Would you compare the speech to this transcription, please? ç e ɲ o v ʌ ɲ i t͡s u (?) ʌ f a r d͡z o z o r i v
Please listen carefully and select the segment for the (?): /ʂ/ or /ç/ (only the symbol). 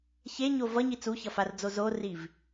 ç